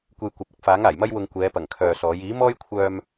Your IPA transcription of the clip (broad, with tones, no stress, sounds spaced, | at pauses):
kʷ e˧ j kʷ ɐ˨˥ p̚ ʊ˥ k̚ f aː˨˥ ŋ aː˨˩ j m ɐ˥ j w ʊ˧ ŋ kʷ ɛː˨˧ p ɐ˨˩ ŋ kʰ œː˨ s ɔː˨˥ j iː˨˥ m ɔː˥ j kʷʰ œː˧ m